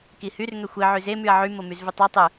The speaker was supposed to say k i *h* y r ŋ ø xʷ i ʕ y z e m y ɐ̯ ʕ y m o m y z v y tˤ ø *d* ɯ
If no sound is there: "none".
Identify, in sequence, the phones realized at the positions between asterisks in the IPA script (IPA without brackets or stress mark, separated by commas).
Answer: h, tˤ